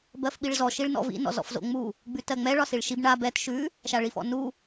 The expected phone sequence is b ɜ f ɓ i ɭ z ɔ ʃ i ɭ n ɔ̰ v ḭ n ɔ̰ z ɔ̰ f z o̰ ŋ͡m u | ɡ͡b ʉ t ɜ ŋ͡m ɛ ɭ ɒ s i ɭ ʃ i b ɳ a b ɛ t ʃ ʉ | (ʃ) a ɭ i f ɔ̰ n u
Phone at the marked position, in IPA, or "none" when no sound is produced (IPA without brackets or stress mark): ʃ